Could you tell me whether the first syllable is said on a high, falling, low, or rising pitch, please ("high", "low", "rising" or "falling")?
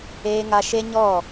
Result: high